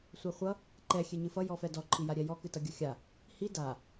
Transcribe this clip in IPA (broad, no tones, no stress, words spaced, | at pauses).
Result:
sʷaχʷʌ | ǃɛ xʲeɲɨfʌ jɔfɛdɔ ǃʰijaɾʲɛjɔ kɨtʌɡʲʌxʲa | hi da